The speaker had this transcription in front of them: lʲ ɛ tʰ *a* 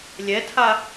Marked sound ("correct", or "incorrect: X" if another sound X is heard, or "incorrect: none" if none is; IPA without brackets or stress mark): correct